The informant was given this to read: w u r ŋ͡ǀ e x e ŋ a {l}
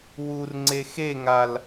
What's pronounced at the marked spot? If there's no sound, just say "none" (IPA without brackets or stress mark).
l